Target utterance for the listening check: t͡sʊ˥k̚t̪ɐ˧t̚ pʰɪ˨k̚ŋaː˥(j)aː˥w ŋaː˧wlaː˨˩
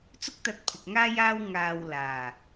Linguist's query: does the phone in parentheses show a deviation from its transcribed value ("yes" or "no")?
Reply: no